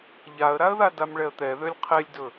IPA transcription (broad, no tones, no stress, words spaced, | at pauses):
ʎaə̯ɾaə̯ða damɭɛə̯t̪ɛðølʲ qʰelʲdɵ